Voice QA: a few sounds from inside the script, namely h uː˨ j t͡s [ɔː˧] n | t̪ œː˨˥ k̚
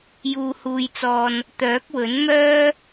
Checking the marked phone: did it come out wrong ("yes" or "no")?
yes